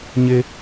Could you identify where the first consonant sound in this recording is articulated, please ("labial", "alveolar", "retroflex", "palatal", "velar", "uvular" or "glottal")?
palatal